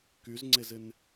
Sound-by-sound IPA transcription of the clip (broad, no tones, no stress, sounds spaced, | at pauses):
k y z ŋ͡ǀ e z ɪ n